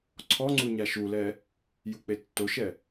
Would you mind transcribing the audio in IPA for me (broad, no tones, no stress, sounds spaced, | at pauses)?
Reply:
ǀʰ ɔ ŋ͡ǀ u ɲ a ʃ u l ɛ | j u k͡p e tː o ʃ ɛ